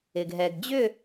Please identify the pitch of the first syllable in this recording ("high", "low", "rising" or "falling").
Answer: low